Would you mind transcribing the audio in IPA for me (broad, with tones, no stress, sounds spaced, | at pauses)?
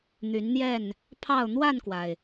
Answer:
n̪ y˨˦ n n̪ j ɛ˥˨ n | pʰ ɑ˥˨ ʊ̯ n̪ w a˥˨ n k w a˩ ɪ̯